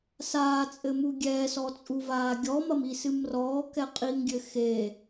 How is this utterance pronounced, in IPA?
s aː t͡sʼ ɘ m u ɡʲ ɛː s ɔ t͡sʼ u v aː ɡʲ ɔ m ɐ m i s ɨ m r ɔː k ɛ qʼ i ŋ ɡʲ ɘ x e

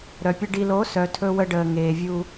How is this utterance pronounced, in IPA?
ɾ œ˨ pʲ ə˦ ɖ i˨ l o˨˦ s œ˨ tʰ ɵ˦ w ə˦ ɖ əː˨ ŋ eː˨ vʲ u˦

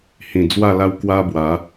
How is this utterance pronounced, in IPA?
h ĩ˨˩ d͡z w a˥˧ l a˦ w k w a˦ b w a˨˦

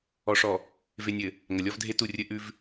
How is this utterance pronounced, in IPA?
ɔ˨ ʂ ɔ˨ | v e˨ nʲ ɘ˨ | ŋ ɐ˨ lʲ ɔ˦ v dʱ e˦ t u˦˨ rʲ ɘ˦ ʔ ʉ˦ v

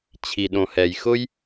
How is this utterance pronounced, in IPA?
t͡ɕʰ i˨ ɗ õ˨ h ɛ˨ j x ʊ˦ j

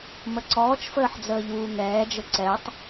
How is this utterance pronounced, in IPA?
m ə ǀ ɔː t͡ʃ f əː ħ d͡z əː ʎ uː ŋ ɛː d͡ʒ ə ǀ ɛ tˤ

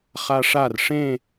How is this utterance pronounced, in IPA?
χ a ʂ a r ʂ ẽ

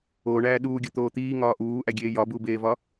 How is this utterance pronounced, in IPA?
o ɳ æː ɗ uː ɡʲ ɒ t̪ oː t̪ iː ŋ ɒː ʔ uː ʔ æ ɡʲ eː j ɒ b uː b eː v ɒː

